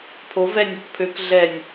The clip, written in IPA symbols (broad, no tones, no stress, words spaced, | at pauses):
pʰov ɛnʲ okpʰøk ɮɛnʲ